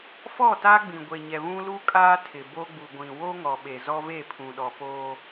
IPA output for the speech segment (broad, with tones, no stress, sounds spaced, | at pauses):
f ɔ˦˨ t a˦ ɡ͡b ĩ˨ ɡʷ e˨ ɲ ɛ˨ β ũ˦ l u˦ kʼ aː˦ tʰ ɪ˨ b o˦ ɡ͡b u˨ ɡʷ ĩ˨ w o˦ ŋ ɔ˨ ɓ e˨ z ɔ˦ v e˦˨ pʰ ũ˨ ɗ ɔ˨ p oː˦